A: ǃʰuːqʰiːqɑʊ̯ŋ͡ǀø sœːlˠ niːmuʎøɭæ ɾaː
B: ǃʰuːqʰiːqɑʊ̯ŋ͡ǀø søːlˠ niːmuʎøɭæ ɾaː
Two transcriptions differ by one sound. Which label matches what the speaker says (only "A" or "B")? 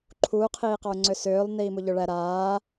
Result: B